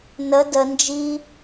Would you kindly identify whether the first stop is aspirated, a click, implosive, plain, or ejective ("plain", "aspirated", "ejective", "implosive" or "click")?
plain